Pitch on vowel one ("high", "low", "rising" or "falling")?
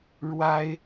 high